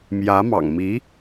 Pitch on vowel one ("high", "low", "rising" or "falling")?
rising